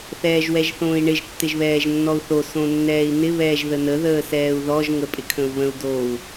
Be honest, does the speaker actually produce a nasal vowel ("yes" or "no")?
yes